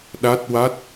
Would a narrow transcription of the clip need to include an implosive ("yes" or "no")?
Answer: yes